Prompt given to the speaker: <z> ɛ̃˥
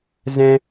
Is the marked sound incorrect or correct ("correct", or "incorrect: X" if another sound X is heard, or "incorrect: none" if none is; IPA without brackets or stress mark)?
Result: correct